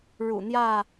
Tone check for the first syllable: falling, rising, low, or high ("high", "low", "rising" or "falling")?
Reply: low